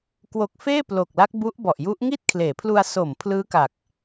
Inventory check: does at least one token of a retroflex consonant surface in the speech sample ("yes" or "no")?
no